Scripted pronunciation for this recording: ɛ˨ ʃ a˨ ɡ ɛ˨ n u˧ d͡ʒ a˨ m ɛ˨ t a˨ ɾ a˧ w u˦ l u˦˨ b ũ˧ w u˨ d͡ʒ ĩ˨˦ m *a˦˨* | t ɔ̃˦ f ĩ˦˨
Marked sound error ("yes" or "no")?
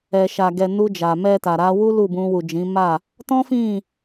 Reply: no